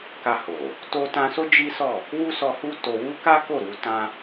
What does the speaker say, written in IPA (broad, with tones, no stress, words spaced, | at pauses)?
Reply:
ka˧ho˨ | to˧tã˧so˦ d͡ʒi˦sɔ˦˨ | wu˦sɔ˧ hu˧ to˦ wu˦ka˦ ko˦˨ɾu˧tã˦